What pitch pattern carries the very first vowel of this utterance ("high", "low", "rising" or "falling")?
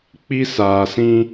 high